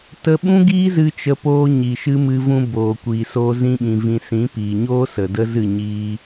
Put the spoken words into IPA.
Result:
t ə˧ ɓ ũ˦ ɡ iː˦ z ɨ˧ t͡ʃ ə˧ p oː˧ ɲ i˨ ʃ ɨ˧ m ɨ˧ v ũ˧ b oː˨ kʷ iː˨ s oː˧ z ĩ˦ ɓ ĩ˧ v ĩ˧ s ĩ˨˦ p iː˨ ɲ oː˦ s ə˨ d ə˦ z ɨ˦˨ ɲ iː˧

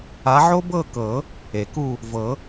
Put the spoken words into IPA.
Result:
a˨˦ ʕ o˥ b ɤ˥˨ k ɤ˨˩˦ | e˩ k u˥˨ | v ɤ˨˩˦

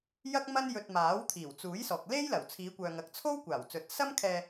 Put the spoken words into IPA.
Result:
j ɐ˥ k̚ m ɐ˥ n j ɵ˧ t̚ m aː˨˥ w t̪ʰ iː˨˩ w t͡s uː˨˥ j s ɔː˨ k̚ l e˥ j l ɐ˨˩ w t͡sʰ iː˨˧ kʷ œː˨ ŋ ɐ˨ k̚ t͡sʰ o˥ w kʷ aː˨˩ w t͡s ɵ˨˥ t̚ s ɐ˥ m kʰ ɛː˧

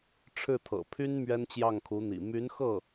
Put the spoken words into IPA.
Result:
ʈ͡ʂʰ ɻ̩˥˩ t̪ʰ ɤ̰˨˩ pʰ y˥ n m ɥ ɛ˥ n t͡ɕ j ɑ˥˩ ŋ kʰ u˧˥ n̪ ḭ˨˩ m y˧˥ n x ɤ˥˩

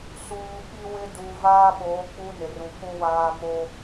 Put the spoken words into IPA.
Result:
s uː˨ ɓ i˦ w ɪ˦ d uː˨ v aː˦ ɓ oː˨˦ k͡p u˦ n ɪ˨ r ũ˨ k ũ˨ w aː˨ m o˦

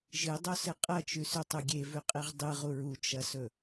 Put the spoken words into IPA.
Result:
ʒ ɨ dˤ o s ɨ qʼ ɐ t͡ʃ ʉ s ʉ tˤ u ɡʲ e v ʉ qʼ e ʁ dˤ ɨ ʁ u ɹ u t͡ʃ ɐ s ɵ

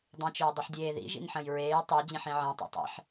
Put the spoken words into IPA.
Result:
dˤ ĩ t͡ʃ ɵː dˤ ʉ ħ dʲ eː ð ḭ ʒ ḭ n ħ ɐ̃ j ɹ eː j tˤ o d͡ʑ ĩ ħ ĩ ʕ ẽ tˤ o̰ tˤ ḭ ħ

